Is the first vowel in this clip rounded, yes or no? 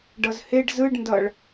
no